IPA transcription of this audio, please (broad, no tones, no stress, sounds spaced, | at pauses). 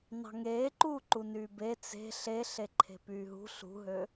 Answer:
n ɑ̤ ŋ eː ǃ uː ǃ u n yː b e t͡s e̤ ɬ e ɬ e ǃʰ e̤ p yː ɦ ṳ ɬ ṳ ɦ ø